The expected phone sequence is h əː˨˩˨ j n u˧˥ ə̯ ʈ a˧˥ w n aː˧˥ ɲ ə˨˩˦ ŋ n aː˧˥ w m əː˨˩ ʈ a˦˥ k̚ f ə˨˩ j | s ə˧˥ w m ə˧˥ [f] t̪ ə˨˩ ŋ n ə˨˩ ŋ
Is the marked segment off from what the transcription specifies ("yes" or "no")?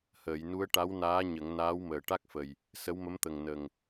yes